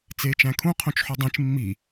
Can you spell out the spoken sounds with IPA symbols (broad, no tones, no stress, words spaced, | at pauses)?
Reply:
t͡seːt͡ʃæ̃kʰũqʰõt͡ʃ ħudˤẽt͡ʃ mːi